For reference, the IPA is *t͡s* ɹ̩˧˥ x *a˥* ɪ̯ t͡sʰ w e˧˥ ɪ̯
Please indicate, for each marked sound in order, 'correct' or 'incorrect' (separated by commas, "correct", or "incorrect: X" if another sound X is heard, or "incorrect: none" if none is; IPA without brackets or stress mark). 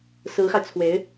incorrect: s, incorrect: a˧